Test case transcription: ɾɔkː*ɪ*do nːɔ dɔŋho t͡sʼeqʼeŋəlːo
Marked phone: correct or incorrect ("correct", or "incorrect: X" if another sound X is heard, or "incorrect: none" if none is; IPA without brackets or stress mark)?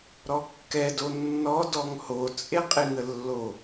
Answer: incorrect: ɛ